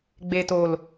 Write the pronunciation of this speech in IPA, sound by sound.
ɡ͡be˨to˨l

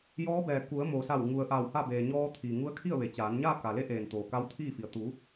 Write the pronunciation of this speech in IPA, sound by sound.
jɔː˧˥bɛː˩ ku˩˧ə̯moː˩sa˧˩w ŋu˩ə̯ʔaː˧˩wha˥˨beː˩ ɲɔː˧t̪ʰiː˩ŋu˧˥ə̯kʰi˥˨ə̯ ʋe˩˧t͡ɕaː˩˧n ɲaː˥˨ka˩le˧˥ ʔeː˩n t̪oː˩ka˧˥wt̪ʰiː˥˨fi˩ə̯ t̪u˩˧

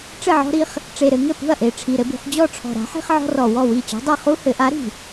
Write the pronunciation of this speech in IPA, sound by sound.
ʈ͡ʂɘ˥˩ʕɔ̤˦ɾi˦χ | ʈ͡ʂe˨˩ɾɘ˩˧ ŋɘ˥˩pṳ˥˩ɐ̯ʔe˨˩ ʈ͡ʂʰi˨˩ɾɘ˦bṳ˩˧χ d͡ʑɔ˥˩ʈ͡ʂʰɔ̤˨˩ɾa̤˨˥ħi̤˦χ ʕɔ̤˦rɔ˨˩ wɔ˥˩wi˥˩ t͡ɕɔ̤˨˥dˤe˥˩ χu˦hɘ˩˧ʔa˨˥ ɾi̤˨˩

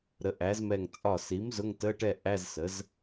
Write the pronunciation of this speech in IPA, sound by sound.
ɾə˩˥ʔæ˩˥zmɛ˧˩ŋ t͡sʼɒ˧˩si˩˥m zʊ˧˥˧ŋtə˧˥˧ʈɛ˥˨ ʔæ˧˥˧zsə˩˥z

